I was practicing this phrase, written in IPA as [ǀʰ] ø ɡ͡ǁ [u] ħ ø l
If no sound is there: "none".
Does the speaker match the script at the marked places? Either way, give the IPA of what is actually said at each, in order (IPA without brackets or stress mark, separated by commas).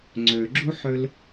ŋ͡ǀ, u